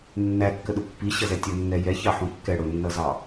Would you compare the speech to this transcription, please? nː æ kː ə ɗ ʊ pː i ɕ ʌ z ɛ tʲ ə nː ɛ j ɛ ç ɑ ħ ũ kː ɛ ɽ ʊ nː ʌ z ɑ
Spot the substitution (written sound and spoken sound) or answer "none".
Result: none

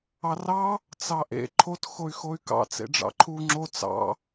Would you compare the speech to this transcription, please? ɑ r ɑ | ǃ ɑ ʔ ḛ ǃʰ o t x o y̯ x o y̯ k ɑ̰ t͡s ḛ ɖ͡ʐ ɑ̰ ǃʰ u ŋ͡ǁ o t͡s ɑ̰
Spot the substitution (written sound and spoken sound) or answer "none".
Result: ǃ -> t͡s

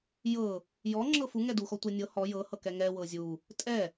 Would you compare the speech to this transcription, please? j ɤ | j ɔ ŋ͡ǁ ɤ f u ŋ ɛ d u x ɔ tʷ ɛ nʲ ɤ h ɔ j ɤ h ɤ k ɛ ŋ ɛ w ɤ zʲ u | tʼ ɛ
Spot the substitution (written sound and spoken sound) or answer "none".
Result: none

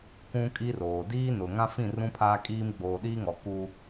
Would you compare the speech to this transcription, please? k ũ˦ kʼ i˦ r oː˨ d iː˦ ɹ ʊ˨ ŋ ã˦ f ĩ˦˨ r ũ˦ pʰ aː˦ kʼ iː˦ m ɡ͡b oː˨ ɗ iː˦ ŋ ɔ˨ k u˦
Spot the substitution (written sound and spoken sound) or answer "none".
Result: ɹ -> n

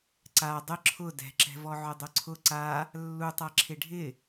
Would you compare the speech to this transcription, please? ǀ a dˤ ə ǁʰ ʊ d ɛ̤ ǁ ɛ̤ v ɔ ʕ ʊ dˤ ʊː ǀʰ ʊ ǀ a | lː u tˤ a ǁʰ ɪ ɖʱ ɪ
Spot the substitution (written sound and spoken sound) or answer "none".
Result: ʊː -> ʊ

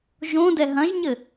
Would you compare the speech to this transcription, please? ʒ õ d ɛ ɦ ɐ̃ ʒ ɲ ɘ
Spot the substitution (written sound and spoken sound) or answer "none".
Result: none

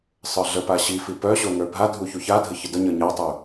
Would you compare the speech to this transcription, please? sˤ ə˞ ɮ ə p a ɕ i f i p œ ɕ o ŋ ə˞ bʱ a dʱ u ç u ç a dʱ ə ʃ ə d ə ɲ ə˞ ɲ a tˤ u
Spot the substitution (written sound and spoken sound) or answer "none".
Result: ʃ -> ç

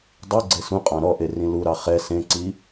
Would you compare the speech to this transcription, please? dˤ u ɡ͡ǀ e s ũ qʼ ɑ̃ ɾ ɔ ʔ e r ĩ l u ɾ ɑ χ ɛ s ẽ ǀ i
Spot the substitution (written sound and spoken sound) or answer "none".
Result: none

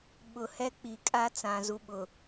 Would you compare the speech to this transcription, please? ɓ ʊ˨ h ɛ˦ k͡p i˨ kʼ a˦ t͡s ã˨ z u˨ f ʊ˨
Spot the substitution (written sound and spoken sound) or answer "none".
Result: f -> ɓ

